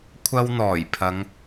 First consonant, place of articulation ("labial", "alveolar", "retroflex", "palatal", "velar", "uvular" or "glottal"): velar